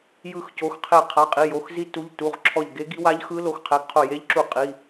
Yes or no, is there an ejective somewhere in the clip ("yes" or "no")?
yes